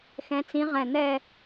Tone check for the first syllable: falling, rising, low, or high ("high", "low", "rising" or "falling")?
rising